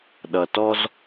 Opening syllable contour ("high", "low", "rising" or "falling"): low